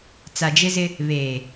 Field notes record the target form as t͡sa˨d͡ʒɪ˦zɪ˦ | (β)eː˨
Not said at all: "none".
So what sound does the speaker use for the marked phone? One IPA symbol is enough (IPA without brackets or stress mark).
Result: β